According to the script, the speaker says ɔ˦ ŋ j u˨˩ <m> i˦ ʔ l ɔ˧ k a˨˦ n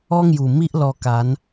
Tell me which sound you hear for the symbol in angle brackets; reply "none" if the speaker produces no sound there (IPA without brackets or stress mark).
m